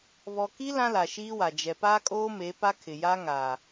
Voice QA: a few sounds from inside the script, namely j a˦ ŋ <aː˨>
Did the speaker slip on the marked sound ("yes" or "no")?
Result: no